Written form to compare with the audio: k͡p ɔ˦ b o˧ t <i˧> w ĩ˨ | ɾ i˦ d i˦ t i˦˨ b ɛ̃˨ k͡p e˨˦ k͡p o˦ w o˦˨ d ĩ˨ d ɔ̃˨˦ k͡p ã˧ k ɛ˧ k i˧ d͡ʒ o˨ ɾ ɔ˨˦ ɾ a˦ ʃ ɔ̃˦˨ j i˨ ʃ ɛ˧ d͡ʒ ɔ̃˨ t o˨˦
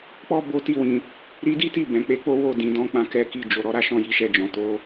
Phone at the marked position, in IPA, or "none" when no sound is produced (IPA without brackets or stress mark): i˧